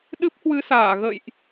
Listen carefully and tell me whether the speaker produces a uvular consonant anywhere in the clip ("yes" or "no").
no